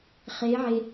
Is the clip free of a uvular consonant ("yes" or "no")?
no